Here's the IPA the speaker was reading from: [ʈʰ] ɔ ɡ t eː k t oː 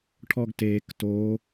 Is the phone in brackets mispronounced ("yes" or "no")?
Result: no